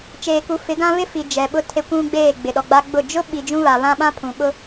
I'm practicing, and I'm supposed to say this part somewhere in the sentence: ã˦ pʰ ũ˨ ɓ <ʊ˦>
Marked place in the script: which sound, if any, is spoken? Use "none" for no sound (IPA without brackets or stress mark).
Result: ʊ˦